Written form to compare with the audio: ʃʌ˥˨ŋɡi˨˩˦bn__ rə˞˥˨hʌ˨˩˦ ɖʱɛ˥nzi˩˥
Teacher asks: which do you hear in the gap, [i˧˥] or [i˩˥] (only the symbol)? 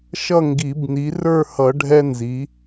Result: i˩˥